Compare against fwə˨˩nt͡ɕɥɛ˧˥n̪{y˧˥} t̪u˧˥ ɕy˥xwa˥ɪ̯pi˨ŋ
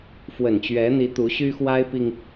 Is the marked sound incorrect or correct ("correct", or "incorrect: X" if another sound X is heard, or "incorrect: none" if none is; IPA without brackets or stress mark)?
incorrect: i˧˥